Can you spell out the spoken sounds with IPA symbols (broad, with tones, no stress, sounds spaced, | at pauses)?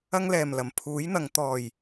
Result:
ɐ˧ ŋ l ɛː˨˩ m l ɐ˨˩ m pʰ uː˨˥ j n̪ ɐ˨ ŋ t̪ ɔː˨˩ j